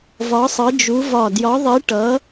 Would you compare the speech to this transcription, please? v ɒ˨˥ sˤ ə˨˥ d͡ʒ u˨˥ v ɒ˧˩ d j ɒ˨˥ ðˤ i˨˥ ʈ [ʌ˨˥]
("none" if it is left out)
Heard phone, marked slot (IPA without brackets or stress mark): ʌ˨˥